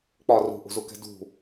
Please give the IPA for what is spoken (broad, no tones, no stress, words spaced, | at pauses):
k͡pɒ rṳʔṳzukɛ̤ dṳ